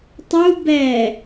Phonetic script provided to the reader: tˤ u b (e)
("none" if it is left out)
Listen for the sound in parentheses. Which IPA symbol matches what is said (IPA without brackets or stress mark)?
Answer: ɛ